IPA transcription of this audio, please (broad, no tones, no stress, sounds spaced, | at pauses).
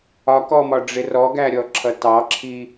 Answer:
ɒ k ɔ m ɒ ɖ͡ʐ ɪ r ɔ ɡ æ ɾʲ ɔ ǁʰ ʌ t ɑ ǁʰ i